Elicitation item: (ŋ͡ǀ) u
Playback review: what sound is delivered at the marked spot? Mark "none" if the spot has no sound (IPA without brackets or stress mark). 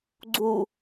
ɡ͡ǀ